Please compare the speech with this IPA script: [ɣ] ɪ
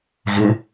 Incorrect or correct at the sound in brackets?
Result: correct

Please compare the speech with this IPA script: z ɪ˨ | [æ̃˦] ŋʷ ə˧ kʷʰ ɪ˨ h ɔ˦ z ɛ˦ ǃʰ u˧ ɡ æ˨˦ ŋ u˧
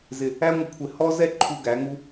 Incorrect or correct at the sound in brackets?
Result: incorrect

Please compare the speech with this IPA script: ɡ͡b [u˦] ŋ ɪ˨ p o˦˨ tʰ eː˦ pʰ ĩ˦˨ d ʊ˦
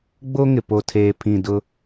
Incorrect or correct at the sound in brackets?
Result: incorrect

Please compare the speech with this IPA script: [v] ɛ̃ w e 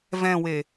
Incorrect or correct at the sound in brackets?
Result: correct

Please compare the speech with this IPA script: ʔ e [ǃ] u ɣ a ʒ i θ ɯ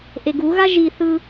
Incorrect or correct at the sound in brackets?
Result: incorrect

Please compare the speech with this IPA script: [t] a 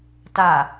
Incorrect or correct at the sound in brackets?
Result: correct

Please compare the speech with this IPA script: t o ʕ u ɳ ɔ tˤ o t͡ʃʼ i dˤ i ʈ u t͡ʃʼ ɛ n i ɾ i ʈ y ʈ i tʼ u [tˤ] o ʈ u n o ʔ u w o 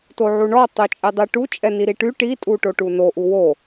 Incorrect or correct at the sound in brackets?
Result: incorrect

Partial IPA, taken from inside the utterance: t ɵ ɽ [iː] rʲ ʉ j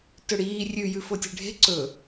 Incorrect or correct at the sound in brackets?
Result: correct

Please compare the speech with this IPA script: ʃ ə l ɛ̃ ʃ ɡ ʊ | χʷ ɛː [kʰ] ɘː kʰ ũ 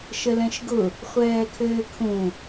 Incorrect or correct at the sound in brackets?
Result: correct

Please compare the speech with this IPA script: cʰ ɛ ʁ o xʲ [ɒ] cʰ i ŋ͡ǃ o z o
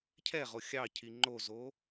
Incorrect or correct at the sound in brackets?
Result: incorrect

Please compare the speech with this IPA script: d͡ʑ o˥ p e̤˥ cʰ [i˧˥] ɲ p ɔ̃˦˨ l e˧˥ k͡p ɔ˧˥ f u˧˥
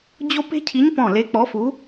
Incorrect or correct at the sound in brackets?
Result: correct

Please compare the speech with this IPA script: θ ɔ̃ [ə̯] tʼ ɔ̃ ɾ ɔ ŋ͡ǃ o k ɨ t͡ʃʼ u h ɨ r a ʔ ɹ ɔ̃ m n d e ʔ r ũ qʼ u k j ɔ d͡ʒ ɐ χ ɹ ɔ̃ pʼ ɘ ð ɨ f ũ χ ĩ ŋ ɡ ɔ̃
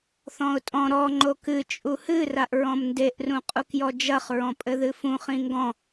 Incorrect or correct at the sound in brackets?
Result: incorrect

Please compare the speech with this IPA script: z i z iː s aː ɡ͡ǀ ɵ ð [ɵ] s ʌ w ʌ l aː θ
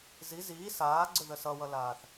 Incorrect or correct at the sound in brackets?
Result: incorrect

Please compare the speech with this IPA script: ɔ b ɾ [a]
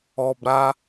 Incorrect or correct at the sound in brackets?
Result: correct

